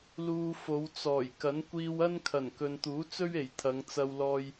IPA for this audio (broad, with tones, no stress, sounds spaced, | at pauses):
l uː˧ f o˨˧ w t͡s ɔː˨˩ j k ɐ˨˥ n kʷ iː˧ w ɐ˥ n kʰ ɐ˨˩ n k ɵ˨ n t̪ uː˨˥ t͡s ɵ˥ ɥ e˨˩ j t̪ʰ ɐ˨˧ ŋ t͡s ɐ˧ w l ɔː˧ j